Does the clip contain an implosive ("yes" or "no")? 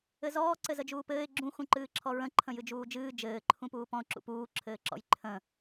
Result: no